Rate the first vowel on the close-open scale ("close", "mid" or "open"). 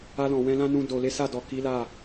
open